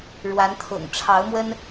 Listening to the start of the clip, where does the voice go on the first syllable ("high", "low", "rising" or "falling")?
rising